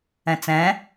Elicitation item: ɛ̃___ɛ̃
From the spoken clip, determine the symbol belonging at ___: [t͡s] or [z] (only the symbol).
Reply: t͡s